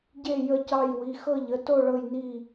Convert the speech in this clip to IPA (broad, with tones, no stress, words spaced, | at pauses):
ɟe˦˨ jə˦˨cɑ˦˨j wi˩˧˩xɤ˦˨ʎə˩˧˩to˦˨ ɭɤ˦˨j ni˦˨